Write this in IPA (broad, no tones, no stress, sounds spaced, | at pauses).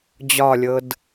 d͡ʑ ɒ lʲ ɤ d